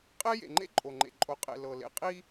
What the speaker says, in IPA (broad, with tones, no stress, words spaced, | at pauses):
qʼe˦ jḛ˨ŋ͡ǃḛ˦ǃʼo˨ŋ͡ǃḛ˨ ǃʼo˨qʼḛ˨ lɤ˨lḛ˨ qʼi˦